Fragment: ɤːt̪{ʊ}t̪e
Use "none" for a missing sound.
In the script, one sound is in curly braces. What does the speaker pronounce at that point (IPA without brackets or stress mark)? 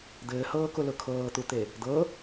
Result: u